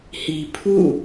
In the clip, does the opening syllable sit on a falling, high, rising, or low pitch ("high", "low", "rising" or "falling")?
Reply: low